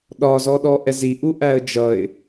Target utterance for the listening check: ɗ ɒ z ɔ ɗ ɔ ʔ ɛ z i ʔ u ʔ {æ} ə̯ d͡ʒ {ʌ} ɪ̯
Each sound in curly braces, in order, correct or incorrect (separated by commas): correct, correct